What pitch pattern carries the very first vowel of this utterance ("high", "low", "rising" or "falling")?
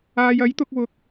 low